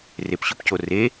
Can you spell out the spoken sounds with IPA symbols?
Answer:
r e p ɕ ʊ p c o r e

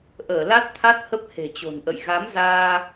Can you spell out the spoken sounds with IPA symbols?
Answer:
ʔ əː˧˩ l a˦˥ t̚ t̪ʰ a˦˥ t̚ h ə˦˥ p̚ h e̤˨˩ t͡ɕ o̤˨˩ n ʔ ə̰˧˨ j ɣ a˨˦ m z aː˧

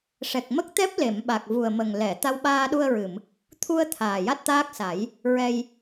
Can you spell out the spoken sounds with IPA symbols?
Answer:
ʂ ɛ˨˩ k̚ m ə˦˥ k̚ t̪ ɛ˦˥ p̚ l e˨˩˨ m ɓ a˨˩ k̚ v u˨˩ ə̯ m ə˨˩ ŋ l ɛ˨˩˨ t̪ a˧ w ɓ aː˧ ɗ u˧ ə̯ ɹ ɨ˨˩˨ m | t̪ʰ u˧ ə̯ t̪ʰ aː˨˩ j a˦˥ t̚ t̪ aː˦˥ k̚ s a˨˩˦ j | ɹ ɛ˧ j

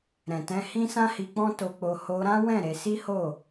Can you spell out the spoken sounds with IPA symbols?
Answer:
ɾ ɛ̃˨ t ɛ̃˧ h ĩ˦ s ã˦ h i˧ k͡p ɔ̃˦ t o˧ k͡p o˧ h o˧ ɾ ã˦ w ɛ̃˦˨ ɾ e˧ s i˦ h o˦˨

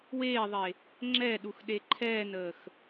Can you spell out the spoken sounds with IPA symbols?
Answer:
w eː ðˤ e | ŋ͡ǁ ɛ ɗ u x ɗ e ǃʰ ɛː n əː x

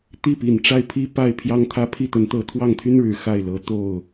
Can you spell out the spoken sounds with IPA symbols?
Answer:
t̪ i˥˩ p i˨˩ n ʈ͡ʂ a˥˩ ɪ̯ pʰ i˥ p a˥˩ ɪ̯ pʰ j ɑ˥ ŋ t̪ʰ ä˥ pʰ i˥˩ t̪ ə˧˥ n t̪ ɤ˧˥ t̪ʰ w ɑ˥˩ ŋ t̪ʰ y˥ n ɻ ɻ̩˨˩ x a˥˩ ɪ̯ l ɤ˨˩ t̪ o˥˩ ʊ̯

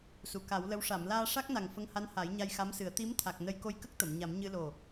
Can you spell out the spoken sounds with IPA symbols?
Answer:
s u˨˩˨ k a˨˩˦ w l ə˧˥ w ʂ a˨˩˨ m l aː˧ ʂ a˦˥ k̚ n a˨˩ ŋ f ə˧ ŋ h a˧˥ n h a˨˩˦ j ɲ a˧ j x a˧˥ m s ɨ˨˩˦ ə̯ t̪ i˧˥ m t̪ʰ a˨˩ k̚ n ə˧ j k o˧ j k ə˦˥ k̚ t̪ ə˨˩˨ m ɲ a˨˩˦ m ɲ ɨ˧ l o˨˩

